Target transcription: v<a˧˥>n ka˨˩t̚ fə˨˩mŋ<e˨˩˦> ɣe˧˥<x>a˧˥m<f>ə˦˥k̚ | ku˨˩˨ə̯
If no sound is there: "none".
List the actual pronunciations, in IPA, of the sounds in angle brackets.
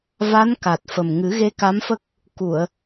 a˧˥, ɨ˨˩˦, k, f

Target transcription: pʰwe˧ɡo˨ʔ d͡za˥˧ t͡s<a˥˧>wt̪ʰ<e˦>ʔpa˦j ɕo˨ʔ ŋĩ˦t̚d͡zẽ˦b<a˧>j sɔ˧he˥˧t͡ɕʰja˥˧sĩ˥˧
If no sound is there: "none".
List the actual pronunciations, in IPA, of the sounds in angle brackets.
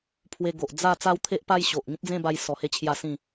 a˦, e˦, a˧

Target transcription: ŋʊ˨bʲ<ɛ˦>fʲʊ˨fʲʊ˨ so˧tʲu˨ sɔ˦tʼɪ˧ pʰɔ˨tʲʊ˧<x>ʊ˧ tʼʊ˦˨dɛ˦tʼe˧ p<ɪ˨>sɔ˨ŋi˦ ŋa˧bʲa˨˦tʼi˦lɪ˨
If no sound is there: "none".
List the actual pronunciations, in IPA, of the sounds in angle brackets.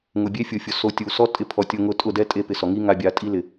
e˦, ŋ, ɪ˨

